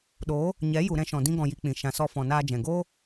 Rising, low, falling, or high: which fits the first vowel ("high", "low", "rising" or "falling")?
rising